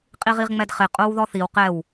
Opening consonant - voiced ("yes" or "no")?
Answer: no